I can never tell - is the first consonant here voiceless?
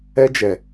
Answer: no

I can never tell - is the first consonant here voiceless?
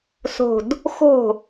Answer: yes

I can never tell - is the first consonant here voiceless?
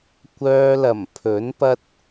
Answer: yes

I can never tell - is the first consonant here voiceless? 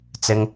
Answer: yes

